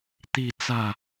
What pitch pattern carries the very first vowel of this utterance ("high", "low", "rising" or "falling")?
falling